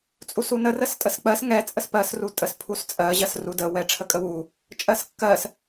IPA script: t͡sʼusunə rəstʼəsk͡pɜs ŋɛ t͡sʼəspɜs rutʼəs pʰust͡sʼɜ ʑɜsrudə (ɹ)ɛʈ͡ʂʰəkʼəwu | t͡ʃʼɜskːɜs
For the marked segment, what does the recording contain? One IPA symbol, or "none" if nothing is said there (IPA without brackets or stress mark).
w